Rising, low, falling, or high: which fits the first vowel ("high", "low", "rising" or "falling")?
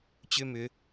high